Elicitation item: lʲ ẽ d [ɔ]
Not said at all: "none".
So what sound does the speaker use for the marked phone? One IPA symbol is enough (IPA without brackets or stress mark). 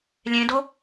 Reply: o